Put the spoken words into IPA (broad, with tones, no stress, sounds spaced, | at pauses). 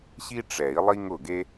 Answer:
ɕ i˥ ʈ͡ʂ ɛ˨˩˦ i̯ lˠ i˥ ŋ ʊ˥˩ ɡ e˥